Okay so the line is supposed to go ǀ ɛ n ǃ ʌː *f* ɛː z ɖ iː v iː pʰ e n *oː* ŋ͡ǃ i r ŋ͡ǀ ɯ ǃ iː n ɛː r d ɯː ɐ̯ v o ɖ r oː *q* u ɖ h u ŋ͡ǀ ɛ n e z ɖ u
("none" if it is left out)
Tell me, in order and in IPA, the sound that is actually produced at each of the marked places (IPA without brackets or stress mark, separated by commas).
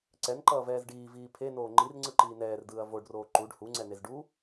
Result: v, oː, ǃ